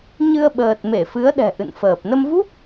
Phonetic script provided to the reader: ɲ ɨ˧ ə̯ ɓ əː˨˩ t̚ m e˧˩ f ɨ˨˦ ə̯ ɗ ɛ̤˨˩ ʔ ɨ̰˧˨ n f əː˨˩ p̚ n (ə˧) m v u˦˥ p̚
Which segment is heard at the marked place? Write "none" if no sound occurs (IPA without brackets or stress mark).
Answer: ə˧